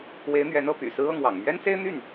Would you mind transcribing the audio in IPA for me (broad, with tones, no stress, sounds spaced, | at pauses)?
w e˧˥ ɪ̯ n̪ ɥ ɛ˧˥ n ɤ˥˩ p y̰˨˩ s ɹ̩˥ ɤ˥˩ ŋ w ɑ̰˨˩ ŋ m ɥ ɛ˥ n s e˥ ɪ̯ n̪ y˥˩ n